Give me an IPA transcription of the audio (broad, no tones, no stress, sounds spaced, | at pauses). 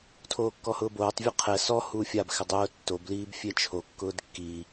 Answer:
tʰ oː kː ɔ h ʊː b oː tˤ vʲ ʊ qʰ ɛ s ɔ h uː fʲ a b x ɪ dˤ ʊː tː o b l iː b fʲ e t͡ʃʰ o kː ʊː d kː i